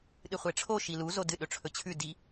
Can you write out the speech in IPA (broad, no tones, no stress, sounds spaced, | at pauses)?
ɗ ɨ χʷ e ʈ͡ʂʰ o ʃ i l u z o d ɨ ɗ ɵ ʈ͡ʂʰ ɵ t͡ɕʰ ʉ d i